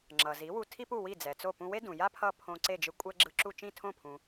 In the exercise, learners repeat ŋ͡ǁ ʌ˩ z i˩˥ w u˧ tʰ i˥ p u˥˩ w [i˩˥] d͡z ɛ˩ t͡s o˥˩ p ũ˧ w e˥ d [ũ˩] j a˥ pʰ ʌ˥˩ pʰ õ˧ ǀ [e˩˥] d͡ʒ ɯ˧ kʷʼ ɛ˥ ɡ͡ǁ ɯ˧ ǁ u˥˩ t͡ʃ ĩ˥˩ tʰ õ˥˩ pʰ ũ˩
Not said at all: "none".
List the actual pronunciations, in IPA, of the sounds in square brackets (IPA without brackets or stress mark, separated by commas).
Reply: i˥˩, ũ˩, e˥˩